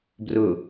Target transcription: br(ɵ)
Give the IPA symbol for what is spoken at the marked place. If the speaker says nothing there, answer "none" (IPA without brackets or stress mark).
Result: ɵ